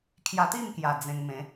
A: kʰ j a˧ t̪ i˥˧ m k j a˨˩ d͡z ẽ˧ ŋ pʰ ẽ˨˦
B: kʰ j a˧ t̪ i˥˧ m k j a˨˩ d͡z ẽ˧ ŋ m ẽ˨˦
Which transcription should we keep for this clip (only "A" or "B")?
B